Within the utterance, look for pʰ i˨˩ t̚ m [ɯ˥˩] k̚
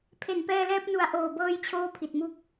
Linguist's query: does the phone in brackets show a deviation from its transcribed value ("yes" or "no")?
yes